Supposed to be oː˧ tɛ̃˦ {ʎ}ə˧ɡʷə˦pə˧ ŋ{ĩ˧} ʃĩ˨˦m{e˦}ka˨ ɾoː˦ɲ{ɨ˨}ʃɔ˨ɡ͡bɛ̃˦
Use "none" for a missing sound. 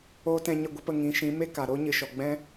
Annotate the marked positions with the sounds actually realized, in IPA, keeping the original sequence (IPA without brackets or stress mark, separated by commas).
ɲ, ĩ˨˦, e˦, ɨ˨